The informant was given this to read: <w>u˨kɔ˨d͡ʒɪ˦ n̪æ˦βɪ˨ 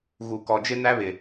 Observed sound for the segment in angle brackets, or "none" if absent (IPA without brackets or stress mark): ɣ